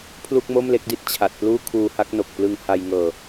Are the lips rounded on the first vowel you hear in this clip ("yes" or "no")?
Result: yes